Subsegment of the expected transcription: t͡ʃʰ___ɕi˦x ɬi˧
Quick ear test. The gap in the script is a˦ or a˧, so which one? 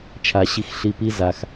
a˧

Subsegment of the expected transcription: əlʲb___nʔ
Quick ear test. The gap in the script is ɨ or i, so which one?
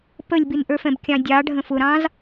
i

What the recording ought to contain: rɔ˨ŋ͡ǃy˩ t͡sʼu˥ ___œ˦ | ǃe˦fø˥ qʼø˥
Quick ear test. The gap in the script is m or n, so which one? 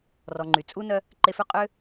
n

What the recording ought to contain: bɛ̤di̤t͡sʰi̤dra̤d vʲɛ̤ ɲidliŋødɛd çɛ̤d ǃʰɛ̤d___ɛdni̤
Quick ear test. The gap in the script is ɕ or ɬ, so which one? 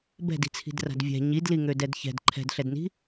ɬ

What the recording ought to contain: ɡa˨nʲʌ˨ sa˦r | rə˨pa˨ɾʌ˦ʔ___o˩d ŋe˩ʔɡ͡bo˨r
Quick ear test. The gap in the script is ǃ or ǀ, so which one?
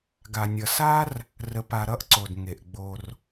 ǀ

